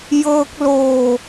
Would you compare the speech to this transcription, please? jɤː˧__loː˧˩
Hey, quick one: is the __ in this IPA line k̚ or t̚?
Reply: k̚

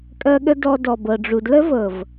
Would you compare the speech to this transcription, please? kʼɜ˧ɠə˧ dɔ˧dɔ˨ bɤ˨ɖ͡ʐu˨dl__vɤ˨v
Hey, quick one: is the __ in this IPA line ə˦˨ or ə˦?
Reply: ə˦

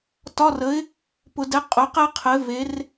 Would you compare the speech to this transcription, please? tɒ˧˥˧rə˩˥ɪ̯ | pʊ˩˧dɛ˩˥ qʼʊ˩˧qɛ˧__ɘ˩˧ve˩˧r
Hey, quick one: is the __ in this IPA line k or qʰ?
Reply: qʰ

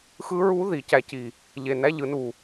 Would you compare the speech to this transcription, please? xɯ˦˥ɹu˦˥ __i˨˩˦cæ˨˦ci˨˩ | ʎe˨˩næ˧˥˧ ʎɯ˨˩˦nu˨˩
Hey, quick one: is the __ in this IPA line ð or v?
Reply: ð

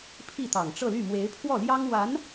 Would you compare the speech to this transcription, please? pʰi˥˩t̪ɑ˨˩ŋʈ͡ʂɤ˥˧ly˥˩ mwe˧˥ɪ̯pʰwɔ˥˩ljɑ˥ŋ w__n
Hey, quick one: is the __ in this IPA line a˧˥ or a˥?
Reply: a˧˥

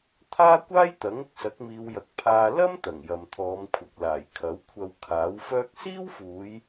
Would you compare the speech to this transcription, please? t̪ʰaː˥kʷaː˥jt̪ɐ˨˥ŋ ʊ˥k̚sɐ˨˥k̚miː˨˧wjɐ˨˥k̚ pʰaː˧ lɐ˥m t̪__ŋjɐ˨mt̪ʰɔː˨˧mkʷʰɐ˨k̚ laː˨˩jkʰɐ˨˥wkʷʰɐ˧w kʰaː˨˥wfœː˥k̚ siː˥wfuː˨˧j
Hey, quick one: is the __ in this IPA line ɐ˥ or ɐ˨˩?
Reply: ɐ˨˩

